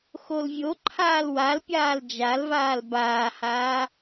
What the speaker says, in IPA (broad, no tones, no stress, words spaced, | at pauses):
xolvʲoǃʰaːl walpʲaːl d͡ʒalvaːl baːhaː